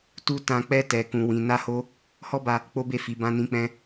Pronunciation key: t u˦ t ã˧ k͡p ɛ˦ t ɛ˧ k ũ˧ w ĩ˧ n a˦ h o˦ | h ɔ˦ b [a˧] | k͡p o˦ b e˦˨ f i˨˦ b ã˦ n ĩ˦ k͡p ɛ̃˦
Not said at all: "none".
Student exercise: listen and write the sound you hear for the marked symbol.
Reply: a˧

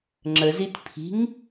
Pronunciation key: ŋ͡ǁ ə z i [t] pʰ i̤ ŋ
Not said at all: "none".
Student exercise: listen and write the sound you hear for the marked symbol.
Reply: t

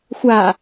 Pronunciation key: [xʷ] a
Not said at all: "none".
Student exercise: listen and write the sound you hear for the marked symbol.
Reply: xʷ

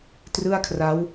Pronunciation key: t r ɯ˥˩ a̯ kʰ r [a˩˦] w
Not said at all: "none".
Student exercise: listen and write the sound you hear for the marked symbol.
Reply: a˦˥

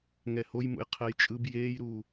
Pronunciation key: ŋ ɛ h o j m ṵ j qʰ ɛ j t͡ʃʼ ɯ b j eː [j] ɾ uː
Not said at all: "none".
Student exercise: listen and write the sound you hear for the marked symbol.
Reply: j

